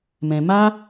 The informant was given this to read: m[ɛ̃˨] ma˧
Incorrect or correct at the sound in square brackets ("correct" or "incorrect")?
correct